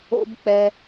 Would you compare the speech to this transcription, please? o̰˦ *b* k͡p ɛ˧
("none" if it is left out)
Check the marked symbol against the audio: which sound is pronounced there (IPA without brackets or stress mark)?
b